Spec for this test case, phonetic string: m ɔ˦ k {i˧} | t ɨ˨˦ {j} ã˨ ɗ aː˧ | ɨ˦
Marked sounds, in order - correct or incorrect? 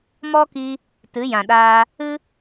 correct, correct

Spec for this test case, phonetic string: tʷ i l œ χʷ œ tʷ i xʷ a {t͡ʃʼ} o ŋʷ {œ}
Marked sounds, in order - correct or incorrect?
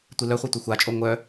correct, correct

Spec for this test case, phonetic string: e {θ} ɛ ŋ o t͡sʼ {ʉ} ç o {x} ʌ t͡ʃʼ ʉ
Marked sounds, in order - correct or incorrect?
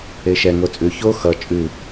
incorrect: ʃ, correct, correct

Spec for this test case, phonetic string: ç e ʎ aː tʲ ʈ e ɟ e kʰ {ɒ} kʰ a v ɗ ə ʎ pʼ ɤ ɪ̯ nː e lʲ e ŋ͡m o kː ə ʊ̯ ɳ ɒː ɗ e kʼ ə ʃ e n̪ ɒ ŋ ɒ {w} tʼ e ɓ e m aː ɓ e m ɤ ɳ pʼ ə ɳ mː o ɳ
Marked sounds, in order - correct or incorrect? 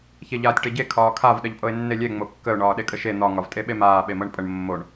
incorrect: ɒː, incorrect: v

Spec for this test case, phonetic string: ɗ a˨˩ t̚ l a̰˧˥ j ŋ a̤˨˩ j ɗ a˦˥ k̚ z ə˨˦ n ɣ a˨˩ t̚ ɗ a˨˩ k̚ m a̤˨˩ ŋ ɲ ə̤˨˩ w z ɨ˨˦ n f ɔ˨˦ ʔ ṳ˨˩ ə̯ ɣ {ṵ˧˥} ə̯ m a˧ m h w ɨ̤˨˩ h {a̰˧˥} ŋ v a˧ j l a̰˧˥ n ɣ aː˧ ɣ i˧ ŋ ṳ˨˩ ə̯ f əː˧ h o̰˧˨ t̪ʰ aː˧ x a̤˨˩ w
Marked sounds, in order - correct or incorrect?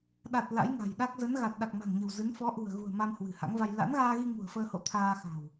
incorrect: ṳ˨˩, correct

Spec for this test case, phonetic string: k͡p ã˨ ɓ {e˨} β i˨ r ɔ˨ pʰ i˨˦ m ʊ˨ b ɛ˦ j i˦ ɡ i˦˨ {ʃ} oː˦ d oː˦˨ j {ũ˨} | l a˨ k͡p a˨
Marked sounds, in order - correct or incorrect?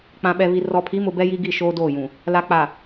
incorrect: ɛ˨, correct, correct

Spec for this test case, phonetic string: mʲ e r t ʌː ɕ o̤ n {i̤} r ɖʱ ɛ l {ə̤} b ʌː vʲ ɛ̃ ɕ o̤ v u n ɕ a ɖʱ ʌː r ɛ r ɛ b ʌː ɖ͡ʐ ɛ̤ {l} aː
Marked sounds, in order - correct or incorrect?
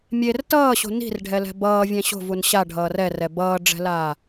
correct, incorrect: ɛ̤, correct

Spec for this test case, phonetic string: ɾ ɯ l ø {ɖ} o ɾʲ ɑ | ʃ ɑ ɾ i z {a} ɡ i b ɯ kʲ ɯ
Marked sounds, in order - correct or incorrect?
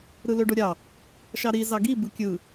correct, incorrect: ɑ

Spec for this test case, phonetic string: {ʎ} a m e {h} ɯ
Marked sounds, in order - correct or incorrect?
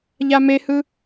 correct, correct

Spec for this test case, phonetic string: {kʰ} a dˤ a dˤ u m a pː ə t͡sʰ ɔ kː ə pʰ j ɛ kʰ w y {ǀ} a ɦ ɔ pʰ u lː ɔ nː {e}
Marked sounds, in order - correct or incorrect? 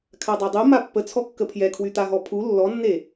correct, incorrect: t̪, correct

